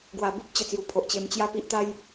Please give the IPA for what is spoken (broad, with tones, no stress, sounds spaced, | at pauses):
ɡ w a˨˩ b u˦ p̚ t͡ɕ ə˨˩ t͡s j u˨˩ pʰ o˨ ʔ t͡ɕ e˧ m t͡ɕ j a˥˧ p i˦ ʔ t̪ a˦ j